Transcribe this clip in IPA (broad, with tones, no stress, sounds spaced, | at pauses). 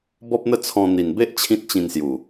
b ɔ˦ p̚ n̪ ə˦ t͡sʰ ɔ̃˧ n̪ i˨˩ n b e˦ ʔ t͡ɕʰ ĩ˦ t̚ t͡ɕ ĩ˧ n s j u˨˩